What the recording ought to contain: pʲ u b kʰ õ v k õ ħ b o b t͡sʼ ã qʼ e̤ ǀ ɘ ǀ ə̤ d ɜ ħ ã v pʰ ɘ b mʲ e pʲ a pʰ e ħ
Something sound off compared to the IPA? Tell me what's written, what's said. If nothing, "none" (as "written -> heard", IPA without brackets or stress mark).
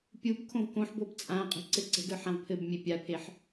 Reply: ɜ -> ə˞